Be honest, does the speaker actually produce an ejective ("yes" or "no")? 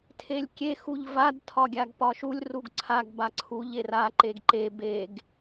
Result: no